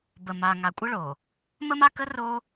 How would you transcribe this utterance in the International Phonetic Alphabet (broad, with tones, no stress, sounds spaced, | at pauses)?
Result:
b ə˨ m a˨ ŋ a˨ kʷʼ ʌ˦ ɭ o˨ | m ə˦ m a˦ k ə˦ r o˦